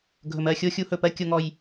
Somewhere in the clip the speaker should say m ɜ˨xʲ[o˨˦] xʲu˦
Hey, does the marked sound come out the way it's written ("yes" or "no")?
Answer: no